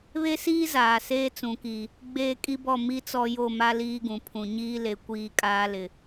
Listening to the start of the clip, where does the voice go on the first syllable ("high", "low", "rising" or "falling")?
high